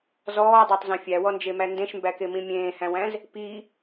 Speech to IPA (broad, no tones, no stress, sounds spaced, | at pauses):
z ɔː dˤ æ tˤ z ẽ fʲ æ w ɔ n d͡ʒ e m æ n d ẽ ʃ m b æ k e m ĩ mʲ ẽː h æ̃ w æ̃ z | p i